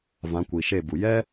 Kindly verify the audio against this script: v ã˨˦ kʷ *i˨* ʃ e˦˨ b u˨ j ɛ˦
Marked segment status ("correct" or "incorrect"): correct